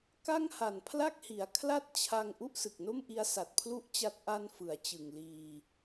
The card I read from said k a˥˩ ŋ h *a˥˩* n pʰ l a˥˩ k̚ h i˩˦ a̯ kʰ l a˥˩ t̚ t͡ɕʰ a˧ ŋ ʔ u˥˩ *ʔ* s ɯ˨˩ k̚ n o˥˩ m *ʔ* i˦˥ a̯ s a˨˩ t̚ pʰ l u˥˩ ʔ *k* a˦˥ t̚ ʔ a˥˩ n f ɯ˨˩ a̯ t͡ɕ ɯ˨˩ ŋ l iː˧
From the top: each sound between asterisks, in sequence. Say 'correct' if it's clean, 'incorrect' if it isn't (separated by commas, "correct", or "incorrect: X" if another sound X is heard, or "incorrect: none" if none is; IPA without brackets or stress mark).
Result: incorrect: a˨˩, correct, correct, incorrect: t͡ɕ